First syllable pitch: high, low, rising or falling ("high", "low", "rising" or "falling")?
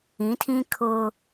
rising